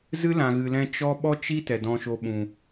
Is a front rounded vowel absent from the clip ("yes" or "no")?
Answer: yes